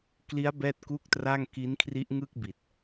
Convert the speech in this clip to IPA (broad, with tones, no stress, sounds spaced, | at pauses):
k l i˦˥ a̯ b ɛː˥˩ t̚ k uː˥˩ k̚ t r a˥˩ ŋ k i˦˥ n kʰ r i˦˥ ʔ ŋ ɯ˥˩ k̚ b i˨˩ t̚